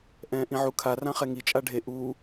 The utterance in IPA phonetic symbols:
ʔ ɛ̃ː ʔ ĩ ʕ u kʰ a r ã χ ɛ ŋ i t͡ʃʼ a ɖʱ e ʔ uː

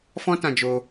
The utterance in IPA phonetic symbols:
f ɔ̃˦ t ã˧ d͡ʒ o˧

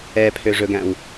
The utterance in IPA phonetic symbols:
ɛ pʰ ø ʐ ɵ ɡ æ̃ w

